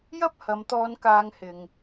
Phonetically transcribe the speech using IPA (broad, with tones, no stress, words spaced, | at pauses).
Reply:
jɐ˥p̚hɐ˨˧mt̪ɔː˧n kaː˧ŋhɪ˨ŋ